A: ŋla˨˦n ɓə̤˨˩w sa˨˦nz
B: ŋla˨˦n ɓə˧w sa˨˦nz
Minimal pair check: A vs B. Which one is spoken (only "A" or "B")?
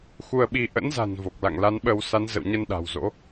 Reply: B